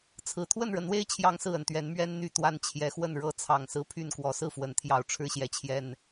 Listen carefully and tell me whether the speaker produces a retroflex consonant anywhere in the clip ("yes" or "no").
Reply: yes